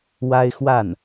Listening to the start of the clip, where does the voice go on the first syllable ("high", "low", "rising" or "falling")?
high